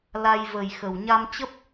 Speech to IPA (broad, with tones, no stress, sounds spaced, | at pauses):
l a˧ j v ə˨˩ j x ə˨˩ w ɲ a˧ m t͡ɕ ə˦˥ p̚